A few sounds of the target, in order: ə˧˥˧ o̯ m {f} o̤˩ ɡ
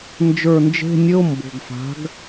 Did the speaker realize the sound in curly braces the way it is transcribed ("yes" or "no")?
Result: no